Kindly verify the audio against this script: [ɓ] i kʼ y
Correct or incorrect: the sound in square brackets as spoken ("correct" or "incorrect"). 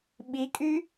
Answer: correct